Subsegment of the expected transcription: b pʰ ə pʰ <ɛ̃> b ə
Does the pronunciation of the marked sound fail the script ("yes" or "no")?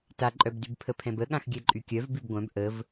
no